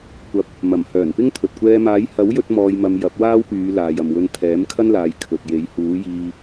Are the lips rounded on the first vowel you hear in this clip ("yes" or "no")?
no